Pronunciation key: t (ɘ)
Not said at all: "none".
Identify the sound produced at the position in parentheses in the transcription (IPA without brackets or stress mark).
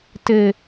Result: ɘ